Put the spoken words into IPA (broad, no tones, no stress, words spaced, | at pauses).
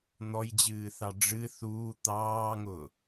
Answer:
n̪ɔjd͡ʑɨːθɑ ɖ͡ʐɨ θuː t̪ɑːŋʊː